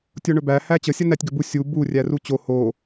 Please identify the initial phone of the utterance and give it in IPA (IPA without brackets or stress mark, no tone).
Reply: tʲ